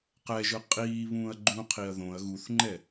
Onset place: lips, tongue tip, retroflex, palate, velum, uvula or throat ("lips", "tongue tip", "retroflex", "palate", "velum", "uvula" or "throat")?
uvula